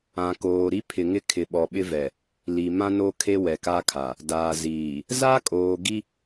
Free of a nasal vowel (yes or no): no